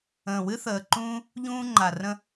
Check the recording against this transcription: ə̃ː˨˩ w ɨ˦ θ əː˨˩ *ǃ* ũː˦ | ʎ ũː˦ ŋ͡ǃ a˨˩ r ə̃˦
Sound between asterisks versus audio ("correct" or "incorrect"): correct